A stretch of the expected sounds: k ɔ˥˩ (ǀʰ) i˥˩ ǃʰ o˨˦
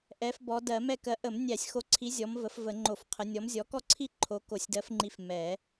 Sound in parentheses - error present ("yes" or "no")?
no